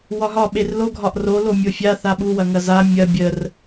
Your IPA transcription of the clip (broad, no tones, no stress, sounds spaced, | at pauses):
w ɒ ɦ ɒ ɓ e r l o ɡʱ ɒ ʔ r o l o mʲ o fʲ a θ a ɓ u w ɐ ŋ ɐ z a mʲ ɐ bʲ ə r